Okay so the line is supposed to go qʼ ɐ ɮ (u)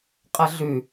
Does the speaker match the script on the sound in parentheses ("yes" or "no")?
no